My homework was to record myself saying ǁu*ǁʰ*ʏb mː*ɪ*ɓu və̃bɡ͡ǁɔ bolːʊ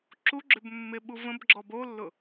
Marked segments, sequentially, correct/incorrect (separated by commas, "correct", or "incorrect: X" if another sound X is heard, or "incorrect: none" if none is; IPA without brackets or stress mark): incorrect: ɡ͡ǁ, correct